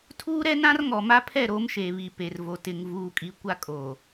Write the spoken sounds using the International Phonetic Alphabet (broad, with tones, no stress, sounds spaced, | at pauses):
tʰ uː˦ ɾ ɛ˦ n ã˦ r ŋ ɔ˨ m a˦ pʰ ɛ˦˨ ɾ oː˦ m ʃ eː˨ β i˨ p e˨ r v o˨ t ɪ˨ ŋ v uː˨ kʼ i˨ kʷ a˦ kʼ oː˨